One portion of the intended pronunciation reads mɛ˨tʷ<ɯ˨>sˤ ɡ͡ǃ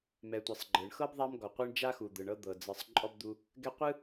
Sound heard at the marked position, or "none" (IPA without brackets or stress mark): ɯ˩